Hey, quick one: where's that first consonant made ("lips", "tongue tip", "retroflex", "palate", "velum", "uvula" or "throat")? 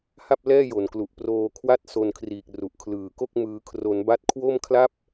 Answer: throat